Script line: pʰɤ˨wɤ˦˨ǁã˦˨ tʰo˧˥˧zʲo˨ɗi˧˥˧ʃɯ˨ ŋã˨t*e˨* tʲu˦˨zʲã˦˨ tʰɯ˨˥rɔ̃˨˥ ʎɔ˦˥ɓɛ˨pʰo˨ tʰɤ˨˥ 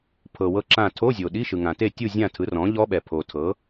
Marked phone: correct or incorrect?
incorrect